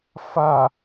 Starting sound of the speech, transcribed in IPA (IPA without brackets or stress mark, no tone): f